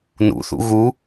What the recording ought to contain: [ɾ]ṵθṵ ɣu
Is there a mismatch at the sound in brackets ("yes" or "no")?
yes